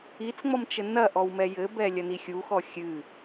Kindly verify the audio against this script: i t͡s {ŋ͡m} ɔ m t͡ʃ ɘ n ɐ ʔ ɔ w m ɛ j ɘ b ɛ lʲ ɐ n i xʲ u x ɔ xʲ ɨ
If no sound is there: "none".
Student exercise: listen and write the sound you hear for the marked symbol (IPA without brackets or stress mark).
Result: ŋ͡m